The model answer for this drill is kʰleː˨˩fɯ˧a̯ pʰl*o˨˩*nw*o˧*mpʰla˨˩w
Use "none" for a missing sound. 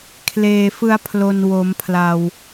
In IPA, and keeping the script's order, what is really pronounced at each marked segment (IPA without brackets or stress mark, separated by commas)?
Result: o˨˩, o˩˦